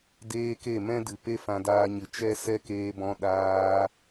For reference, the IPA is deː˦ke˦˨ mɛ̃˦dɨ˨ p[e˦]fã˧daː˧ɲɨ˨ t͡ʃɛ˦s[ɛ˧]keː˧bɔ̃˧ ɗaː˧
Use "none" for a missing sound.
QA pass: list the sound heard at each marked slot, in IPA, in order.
e˦, ɛ˦

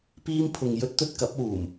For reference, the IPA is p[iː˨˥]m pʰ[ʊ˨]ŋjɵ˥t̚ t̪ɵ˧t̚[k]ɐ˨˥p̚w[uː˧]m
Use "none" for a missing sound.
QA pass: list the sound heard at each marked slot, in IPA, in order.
iː˥, ʊ˨, k, uː˨˩

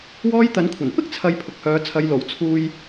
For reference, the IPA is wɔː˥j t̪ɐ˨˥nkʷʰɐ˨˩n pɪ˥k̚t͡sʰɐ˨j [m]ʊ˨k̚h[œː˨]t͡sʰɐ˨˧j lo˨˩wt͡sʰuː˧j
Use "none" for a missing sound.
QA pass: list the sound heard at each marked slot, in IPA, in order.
pʰ, œː˨˧

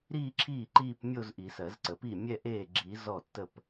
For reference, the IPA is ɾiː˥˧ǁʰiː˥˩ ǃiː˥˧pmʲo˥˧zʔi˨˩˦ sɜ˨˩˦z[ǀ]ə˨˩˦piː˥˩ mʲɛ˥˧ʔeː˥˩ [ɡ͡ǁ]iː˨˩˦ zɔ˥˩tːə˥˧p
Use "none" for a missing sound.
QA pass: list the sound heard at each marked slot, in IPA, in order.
ǀ, ɡ͡ǁ

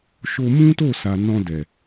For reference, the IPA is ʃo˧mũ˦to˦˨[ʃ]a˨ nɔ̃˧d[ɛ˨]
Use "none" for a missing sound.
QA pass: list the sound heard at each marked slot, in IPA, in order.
s, ɛ˨

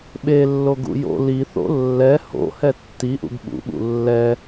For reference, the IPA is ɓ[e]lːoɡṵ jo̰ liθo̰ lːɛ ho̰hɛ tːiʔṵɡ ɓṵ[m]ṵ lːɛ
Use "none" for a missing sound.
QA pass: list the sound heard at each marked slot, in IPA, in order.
e, ɓ

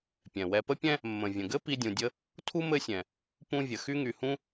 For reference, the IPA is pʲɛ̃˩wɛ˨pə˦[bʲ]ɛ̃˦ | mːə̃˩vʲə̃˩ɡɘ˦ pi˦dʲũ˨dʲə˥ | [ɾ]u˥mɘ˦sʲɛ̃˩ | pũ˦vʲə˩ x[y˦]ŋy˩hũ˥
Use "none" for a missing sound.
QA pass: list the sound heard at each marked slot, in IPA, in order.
pʲ, tʰ, y˦

